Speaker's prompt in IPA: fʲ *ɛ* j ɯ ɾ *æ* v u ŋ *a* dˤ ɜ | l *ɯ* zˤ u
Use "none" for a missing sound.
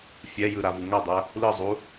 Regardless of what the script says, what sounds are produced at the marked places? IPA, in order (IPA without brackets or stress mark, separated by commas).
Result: ɛ, a, a, ɯ